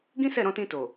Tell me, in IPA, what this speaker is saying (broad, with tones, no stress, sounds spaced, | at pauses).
ɡ ĩ˦ s ɛ˦˨ ɾ ɔ̃˧ t ĩ˧ t o˨